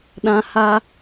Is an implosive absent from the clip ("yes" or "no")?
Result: no